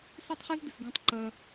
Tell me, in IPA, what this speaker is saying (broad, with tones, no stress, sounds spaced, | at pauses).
s o˦ tˤ χ e˦ z d̪ ɨ˨ s ɡ ũ˧ tˤ ǃ ɐ˧